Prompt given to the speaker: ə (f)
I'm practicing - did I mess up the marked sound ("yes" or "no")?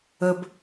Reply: yes